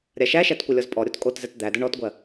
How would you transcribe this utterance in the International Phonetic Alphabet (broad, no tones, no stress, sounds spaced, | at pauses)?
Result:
ɾʲ a ʃ æ ʃ æ t kʷ ɐ lʲ ɔ z pʼ ɔ ɾʲ o t kʼ o t z ɛ t d̪ æ d ə ɳ ɔ t ɡʷ ɜ